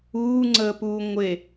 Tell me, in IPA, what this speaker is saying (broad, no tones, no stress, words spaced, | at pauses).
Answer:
uːŋ͡ǀəːpuː ŋʷe